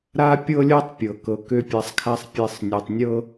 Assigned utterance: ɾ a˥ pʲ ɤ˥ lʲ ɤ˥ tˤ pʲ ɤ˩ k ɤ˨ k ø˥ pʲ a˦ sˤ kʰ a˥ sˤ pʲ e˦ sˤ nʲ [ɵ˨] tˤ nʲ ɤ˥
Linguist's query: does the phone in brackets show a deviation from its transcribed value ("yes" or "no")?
no